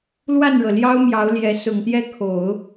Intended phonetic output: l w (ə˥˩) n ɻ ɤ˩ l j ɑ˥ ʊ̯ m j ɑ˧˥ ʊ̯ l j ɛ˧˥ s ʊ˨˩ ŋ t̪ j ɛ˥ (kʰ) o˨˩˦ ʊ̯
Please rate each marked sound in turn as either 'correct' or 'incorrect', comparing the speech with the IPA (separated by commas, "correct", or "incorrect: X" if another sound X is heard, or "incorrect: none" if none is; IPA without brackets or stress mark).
incorrect: a˥˩, correct